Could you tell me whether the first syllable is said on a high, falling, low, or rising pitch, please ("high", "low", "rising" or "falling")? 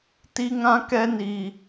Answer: high